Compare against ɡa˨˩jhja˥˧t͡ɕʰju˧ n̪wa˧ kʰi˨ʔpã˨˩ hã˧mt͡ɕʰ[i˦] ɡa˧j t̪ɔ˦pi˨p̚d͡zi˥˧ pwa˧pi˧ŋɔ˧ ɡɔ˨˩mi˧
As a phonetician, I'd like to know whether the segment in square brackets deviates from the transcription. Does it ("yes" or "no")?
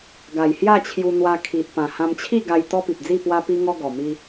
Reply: yes